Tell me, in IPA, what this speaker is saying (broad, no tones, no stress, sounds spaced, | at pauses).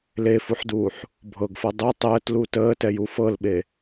l e f u ħ d uː ħ | bʱ ɤ ɡ f ɤ dˤ ɛ tˤ əː t l u t əː t ɛ j u f ɤ l ɓ e